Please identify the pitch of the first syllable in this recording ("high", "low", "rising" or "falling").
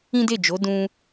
high